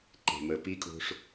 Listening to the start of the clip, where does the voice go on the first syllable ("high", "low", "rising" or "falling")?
low